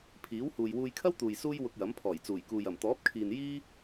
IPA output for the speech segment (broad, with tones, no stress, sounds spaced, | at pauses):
pʰ iː˨˥ w h uː˨ j w uː˧ j kʰ ɐ˥ w t̪ uː˨ j s uː˥ j w ʊ˧ k̚ j ɐ˨˥ m pʰ ɔː˨˩ j t͡s uː˨˩ j k uː˨ j ɐ˨˩ m t̪ ɔː˨˥ p̚ kʰ iː˨ n j iː˥